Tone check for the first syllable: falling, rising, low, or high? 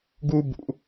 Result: high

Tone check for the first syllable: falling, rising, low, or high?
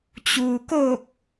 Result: low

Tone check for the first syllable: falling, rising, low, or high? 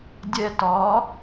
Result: high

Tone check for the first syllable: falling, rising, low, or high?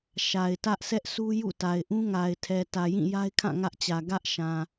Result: low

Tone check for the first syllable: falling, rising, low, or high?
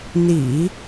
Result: low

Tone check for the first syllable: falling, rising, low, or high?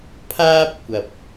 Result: high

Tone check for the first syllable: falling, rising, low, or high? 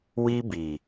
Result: high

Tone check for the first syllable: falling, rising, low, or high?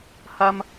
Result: high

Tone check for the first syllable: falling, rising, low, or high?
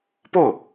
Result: falling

